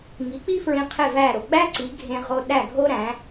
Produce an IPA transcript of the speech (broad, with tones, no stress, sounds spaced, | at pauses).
ŋ i˩˥ k͡p i˥ f ɹ ĩ˧ qʰ e˥˩ v æ˥˩ ɾ o˩ ɡ͡b æ˥ ǀ i˩˥ ɡʱ ẽ˧ ʁ o˧ ɗ æ˥˩ ɡʱ o˥ ɾ æ̃˩˥